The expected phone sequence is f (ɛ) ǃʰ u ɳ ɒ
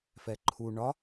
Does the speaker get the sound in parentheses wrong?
no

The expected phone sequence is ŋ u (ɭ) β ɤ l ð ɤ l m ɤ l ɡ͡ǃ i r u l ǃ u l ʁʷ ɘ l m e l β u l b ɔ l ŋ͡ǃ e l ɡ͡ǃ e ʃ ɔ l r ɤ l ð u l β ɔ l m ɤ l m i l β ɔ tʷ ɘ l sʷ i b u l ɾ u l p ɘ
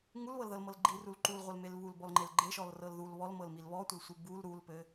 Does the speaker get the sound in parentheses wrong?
yes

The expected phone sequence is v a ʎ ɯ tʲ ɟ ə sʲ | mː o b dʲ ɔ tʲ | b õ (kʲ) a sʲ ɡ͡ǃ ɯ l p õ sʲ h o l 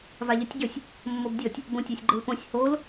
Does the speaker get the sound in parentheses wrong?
yes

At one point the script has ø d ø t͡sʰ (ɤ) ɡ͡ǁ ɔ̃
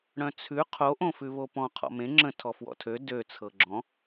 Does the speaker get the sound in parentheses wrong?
no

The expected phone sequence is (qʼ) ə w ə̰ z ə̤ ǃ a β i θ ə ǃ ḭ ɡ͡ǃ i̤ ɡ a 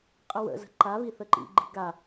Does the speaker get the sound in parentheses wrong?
no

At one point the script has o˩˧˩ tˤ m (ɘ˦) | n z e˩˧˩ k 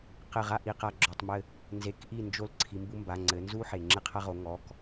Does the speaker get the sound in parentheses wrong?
yes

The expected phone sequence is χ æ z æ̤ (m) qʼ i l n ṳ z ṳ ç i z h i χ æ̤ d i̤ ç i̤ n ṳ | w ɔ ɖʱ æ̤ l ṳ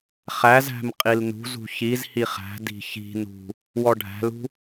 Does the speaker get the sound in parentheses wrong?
no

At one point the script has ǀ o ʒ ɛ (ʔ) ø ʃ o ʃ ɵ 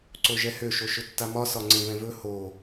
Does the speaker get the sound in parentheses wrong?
yes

